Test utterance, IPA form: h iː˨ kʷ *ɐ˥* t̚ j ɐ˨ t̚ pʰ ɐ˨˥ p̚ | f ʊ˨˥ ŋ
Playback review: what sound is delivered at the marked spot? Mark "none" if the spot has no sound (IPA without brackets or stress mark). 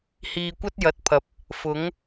ɐ˥